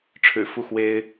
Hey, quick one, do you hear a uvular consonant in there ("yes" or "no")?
no